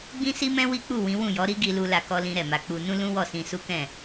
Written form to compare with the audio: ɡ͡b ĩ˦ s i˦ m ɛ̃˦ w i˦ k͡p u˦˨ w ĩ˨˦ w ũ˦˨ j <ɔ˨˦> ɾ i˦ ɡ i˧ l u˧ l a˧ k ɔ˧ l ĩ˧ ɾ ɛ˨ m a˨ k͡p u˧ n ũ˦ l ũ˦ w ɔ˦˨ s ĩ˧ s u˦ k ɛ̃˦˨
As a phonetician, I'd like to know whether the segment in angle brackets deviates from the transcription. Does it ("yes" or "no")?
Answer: no